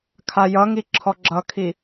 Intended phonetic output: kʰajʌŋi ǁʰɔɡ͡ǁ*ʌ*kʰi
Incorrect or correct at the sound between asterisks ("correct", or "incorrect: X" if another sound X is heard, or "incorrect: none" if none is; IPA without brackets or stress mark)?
correct